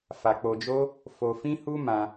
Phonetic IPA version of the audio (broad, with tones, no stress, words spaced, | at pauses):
fa˧k͡po˧d͡ʒo˦ | fo˧fĩ˦hu˦ mã˧